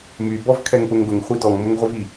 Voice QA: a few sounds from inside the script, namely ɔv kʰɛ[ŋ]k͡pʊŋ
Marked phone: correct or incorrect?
correct